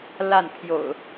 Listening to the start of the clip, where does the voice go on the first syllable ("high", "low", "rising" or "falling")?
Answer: falling